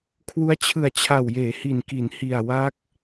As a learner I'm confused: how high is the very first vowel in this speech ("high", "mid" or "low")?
high